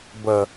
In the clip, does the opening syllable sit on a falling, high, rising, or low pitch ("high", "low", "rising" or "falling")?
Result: low